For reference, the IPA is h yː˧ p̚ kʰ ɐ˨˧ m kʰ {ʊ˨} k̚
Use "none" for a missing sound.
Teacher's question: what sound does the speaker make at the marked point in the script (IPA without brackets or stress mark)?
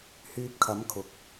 ʊ˨